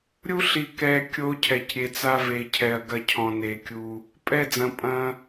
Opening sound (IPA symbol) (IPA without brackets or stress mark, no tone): ɾʲ